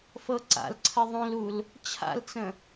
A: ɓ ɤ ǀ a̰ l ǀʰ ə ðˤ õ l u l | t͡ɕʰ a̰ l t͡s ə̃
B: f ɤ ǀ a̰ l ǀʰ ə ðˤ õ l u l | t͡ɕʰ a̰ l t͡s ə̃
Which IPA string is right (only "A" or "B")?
B